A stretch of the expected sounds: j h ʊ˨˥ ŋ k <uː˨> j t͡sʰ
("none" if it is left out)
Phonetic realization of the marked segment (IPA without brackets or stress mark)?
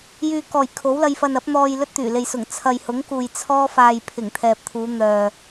uː˨